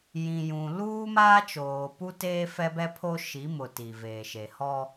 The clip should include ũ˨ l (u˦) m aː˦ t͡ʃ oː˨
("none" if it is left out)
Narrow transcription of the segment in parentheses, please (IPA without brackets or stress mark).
uː˦